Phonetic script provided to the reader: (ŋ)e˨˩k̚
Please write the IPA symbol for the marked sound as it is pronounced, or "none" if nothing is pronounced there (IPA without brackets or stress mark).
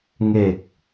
ŋ